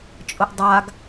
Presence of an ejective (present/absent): present